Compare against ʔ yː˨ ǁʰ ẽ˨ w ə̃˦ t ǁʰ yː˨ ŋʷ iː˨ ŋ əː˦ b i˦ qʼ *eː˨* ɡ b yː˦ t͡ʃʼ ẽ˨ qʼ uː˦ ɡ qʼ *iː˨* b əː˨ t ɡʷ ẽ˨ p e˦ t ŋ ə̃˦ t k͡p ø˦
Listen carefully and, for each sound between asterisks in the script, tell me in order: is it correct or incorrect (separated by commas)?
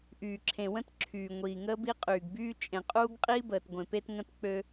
incorrect, incorrect